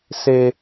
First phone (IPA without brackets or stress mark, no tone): s